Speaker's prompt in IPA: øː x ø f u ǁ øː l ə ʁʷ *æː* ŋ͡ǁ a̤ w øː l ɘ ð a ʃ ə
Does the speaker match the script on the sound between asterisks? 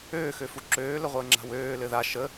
no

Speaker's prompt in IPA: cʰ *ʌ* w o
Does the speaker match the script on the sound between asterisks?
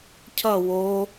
yes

